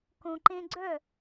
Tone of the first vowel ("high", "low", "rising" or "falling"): low